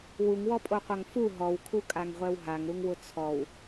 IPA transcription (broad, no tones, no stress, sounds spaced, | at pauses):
w u ŋ w ɔ pʼ o qʷ a ŋ f u ɦ ɔ w kʰ u kʼ a ŋ ʁʷ ɛ w ɦ a ŋ ɾ u ŋ w ʊ t͡sʰ ɔ w